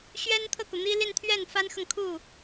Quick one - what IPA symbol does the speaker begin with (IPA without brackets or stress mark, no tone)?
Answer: ɕ